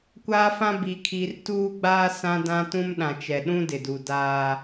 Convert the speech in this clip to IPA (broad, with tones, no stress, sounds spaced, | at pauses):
kʷ aː˦ f ã˦ b i˨ kʰ i˨ r t uː˦ ɡ͡b aː˦ s ã˦ d ã˦ t ũ˦ m ɗ ã˨ t͡ʃ ɛ˨ ɗ ũ˦ d ɪ˨ d u˨ d aː˦